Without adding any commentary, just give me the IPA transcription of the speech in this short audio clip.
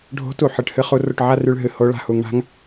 ɖʱ o̤˧˥ t u˩˧ ħ ɨ˩˧ ʈ h ɨ˥ χ u˧˥ r o˧ ʈ ʕ a˥ r y˧ ɭ ɦ ɨ˩˧ h o˧˥ ɭ a̤˧ h u˩˧ ŋ ɳ a̤˧˥ ŋ

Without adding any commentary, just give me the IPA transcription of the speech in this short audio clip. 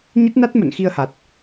ɲ ə˦˥ t̚ n a˦˥ t̚ m ə̰˧˨ n x i˧ ə̯ h a˨˩ t̚

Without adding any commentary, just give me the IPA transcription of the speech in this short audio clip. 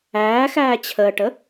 æː x æː t͡ɕʰ əː ʈ ə

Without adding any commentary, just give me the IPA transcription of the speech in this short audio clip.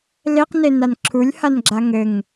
l e q n e n a n ǁʰ u lʲ h a n ɡ͡ǁ a ŋ ɘ ŋ

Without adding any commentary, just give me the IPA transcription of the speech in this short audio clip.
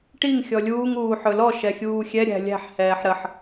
ʈ i ŋ xʲ ɔ lʲ uː ŋ uː ħ ɵ l ɔ ʃ ɛ xʲ uː xʲ ɛ ɾʲ æ̤ lʲ æ̤ ħ h ɛː ħ ɾ ə ħ

